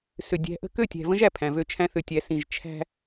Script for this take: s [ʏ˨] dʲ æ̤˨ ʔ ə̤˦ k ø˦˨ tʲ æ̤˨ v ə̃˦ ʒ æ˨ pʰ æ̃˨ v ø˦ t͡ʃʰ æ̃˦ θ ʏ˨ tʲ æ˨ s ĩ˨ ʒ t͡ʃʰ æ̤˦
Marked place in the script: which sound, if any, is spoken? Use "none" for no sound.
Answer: ʏ˨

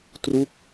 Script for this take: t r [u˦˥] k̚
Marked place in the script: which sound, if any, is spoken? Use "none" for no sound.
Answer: u˥˩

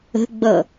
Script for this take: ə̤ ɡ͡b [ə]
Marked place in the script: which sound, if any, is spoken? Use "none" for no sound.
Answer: ʌ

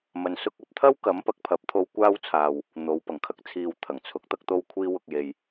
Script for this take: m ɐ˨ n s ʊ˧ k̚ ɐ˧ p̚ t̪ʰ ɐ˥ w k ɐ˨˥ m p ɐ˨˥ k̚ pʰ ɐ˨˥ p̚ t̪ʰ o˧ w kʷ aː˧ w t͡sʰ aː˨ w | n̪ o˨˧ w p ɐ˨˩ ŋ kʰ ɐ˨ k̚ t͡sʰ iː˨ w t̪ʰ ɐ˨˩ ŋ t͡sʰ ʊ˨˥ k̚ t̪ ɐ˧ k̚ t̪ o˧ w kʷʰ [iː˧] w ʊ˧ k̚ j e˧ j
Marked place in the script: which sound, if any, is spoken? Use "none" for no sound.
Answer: iː˧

